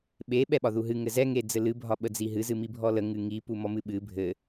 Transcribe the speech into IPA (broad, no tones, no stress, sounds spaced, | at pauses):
ɓ e ɓ ɛ ɓ ɒ ð u ɦ ɨ ŋ ɘ z ɛ ŋ e d͡z ɘ l ɨ bʱ ɒ ɓ ə d͡z i ɦ ɨ z ɨ m i bʱ ɔ l ə ŋ ɨ ŋ i p u m ɔ m ɨ ɓ ɨ bʱ ɘ